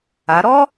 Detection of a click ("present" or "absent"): absent